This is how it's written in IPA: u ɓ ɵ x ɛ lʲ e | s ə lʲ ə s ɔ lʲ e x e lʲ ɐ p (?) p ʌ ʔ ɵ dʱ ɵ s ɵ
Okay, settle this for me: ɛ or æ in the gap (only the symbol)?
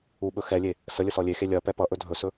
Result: ɛ